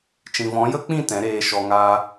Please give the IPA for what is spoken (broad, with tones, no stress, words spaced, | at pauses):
t͡ʃĩ˨vɔ̃˨˦jə˦k͡pĩ˦˨ tɛ̃˨˦ɾeː˧ʃɔ˧ŋaː˦